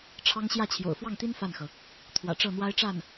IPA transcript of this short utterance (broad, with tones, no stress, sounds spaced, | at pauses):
ʈ͡ʂʰ ɑ˥ ŋ ɕ j ä˥˩ t͡ɕʰ j o̰˨˩ ʊ̯ f w ɑ˥˩ ŋ t̪ i˥ n f a˥˩ n x ɤ˩ | t̪ʰ w ä̰˨˩ ʈ͡ʂ ɤ˥˩ n̪ w a˥ ɪ̯ ʈ͡ʂ a˥˩ n